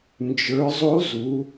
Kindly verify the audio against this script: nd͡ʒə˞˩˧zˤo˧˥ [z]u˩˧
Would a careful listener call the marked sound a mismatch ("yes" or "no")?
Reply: no